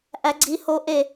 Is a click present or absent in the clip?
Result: present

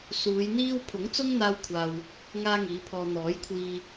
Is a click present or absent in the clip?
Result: absent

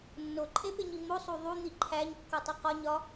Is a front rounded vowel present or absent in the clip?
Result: absent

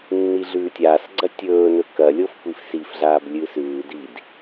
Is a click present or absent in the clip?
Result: present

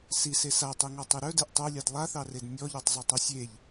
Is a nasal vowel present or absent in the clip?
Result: absent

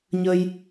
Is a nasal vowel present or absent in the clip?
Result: absent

